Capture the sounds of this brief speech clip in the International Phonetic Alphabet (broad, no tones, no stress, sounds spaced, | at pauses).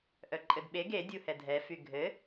ʔ œ ǃʼ ɘ d ɓ e ɡ e dʲ u h ɛ dʱ ɛ f y ɡʱ ɘ